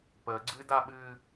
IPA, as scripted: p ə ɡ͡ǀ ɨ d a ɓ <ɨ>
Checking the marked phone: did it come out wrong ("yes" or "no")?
no